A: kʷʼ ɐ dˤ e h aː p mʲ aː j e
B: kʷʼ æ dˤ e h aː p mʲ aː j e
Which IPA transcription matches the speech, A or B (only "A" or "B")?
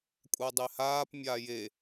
B